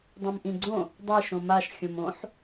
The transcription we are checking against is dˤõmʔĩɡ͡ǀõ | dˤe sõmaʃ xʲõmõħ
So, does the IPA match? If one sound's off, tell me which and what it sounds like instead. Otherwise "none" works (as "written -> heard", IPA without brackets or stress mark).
s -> ʃ